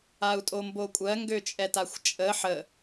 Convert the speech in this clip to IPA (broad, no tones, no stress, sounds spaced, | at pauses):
a u̯ tʼ o m b o kʷʼ ɜ ŋ ɡ ø t͡ʃʼ ɛ t a xʷ t͡ʃʼ ə ħ ə